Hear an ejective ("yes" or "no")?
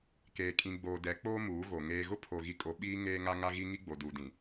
yes